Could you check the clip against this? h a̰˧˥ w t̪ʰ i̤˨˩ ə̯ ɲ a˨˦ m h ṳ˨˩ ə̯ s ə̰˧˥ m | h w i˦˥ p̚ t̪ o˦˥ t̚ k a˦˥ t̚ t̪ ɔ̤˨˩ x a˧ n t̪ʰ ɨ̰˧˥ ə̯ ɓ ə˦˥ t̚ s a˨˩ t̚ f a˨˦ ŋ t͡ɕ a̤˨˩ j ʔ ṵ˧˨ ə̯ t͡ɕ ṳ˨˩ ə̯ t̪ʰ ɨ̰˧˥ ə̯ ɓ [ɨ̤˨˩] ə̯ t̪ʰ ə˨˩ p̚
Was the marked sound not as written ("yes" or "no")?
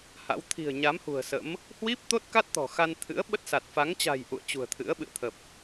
yes